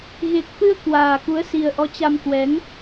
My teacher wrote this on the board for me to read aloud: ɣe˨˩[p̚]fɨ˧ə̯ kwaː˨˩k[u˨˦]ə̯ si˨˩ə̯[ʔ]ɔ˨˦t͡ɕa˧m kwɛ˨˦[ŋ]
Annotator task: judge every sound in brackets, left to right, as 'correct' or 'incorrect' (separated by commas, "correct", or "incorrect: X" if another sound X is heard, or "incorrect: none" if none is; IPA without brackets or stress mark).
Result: incorrect: k̚, correct, correct, correct